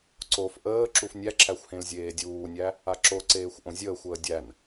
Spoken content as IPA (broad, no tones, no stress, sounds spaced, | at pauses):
ǀ o f ʔ əː ǁ u f nʲ æ ǁ æ xʷ h ẽ l zʲ eː dʲ uː nʲ æ | a ǁ o ǀ eː xʷ ʔ õ zʲ əː xʷ əː dʲ æ n